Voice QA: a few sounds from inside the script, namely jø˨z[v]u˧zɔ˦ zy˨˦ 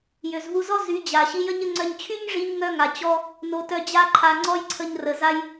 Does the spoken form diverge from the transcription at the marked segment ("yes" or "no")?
no